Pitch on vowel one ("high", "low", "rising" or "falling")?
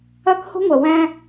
high